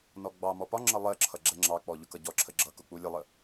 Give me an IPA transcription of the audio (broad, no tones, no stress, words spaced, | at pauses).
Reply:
nɔɡ͡bɑmɔ pɒŋ͡ǁʌ lˠɜǁʰʌ ɡ͡ǁɛŋ͡ǁɑk͡pɔ ʎʊkʌɟɔǁʰə ɡ͡ǁʌkʊ k͡pulʲəlˠə